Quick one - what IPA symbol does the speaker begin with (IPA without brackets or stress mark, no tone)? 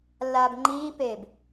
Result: lː